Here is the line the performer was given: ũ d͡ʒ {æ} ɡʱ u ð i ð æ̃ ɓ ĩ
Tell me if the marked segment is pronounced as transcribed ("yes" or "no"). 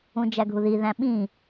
yes